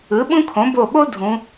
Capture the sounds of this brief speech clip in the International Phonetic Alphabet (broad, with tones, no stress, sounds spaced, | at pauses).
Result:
ɯ˩˥ ɓ ũ˥ kʰ õ˩˥ b o˧˩ ɓ o˥ dʱ ũ˩˧